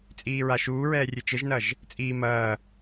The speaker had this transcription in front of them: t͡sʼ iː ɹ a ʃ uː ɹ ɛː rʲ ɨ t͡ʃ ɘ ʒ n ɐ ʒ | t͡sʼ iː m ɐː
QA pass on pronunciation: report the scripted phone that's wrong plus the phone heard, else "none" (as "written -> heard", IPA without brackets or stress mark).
none